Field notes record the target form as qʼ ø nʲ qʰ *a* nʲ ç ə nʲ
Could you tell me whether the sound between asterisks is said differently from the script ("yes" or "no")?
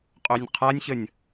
no